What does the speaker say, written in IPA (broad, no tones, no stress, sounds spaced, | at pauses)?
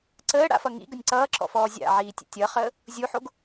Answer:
ǀ əː ɽ a̰ f ʌ ŋ ḭ ɡ ə nʲ ǀ ʌː ǁ ɔ̰ f ɔː zʲ a̰ ʕ iː tʲ ə̰ tʲ ʌ χ əː | zʲ u ħ o ɡ